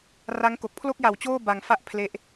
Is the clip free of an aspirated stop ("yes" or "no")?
no